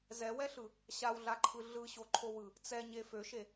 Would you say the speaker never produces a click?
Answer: no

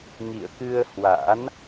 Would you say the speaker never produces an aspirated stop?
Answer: yes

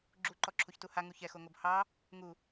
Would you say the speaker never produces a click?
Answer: no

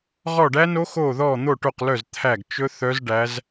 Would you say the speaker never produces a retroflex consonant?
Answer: no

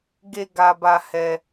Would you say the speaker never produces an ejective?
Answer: yes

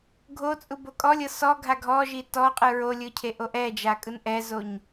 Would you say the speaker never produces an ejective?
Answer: no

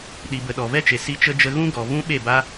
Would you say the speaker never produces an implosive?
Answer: no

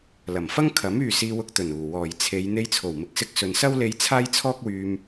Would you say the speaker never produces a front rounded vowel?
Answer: no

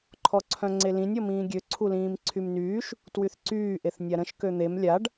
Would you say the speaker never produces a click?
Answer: no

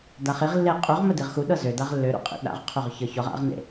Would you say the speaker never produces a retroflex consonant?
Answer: yes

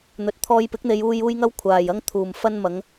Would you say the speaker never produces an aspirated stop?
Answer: no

